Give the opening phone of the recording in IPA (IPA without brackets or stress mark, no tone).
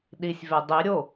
ɗ